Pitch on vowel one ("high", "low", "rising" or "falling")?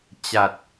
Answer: low